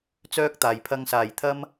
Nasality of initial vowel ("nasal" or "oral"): oral